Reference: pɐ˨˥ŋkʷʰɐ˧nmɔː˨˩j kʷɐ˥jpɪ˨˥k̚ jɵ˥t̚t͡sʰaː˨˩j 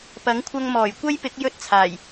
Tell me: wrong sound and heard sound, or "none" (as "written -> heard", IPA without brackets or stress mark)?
n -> ŋ